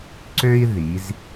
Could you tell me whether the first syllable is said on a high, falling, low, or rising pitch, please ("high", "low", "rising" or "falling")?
high